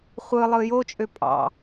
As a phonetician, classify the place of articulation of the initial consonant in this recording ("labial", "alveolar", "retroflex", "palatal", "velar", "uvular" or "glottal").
uvular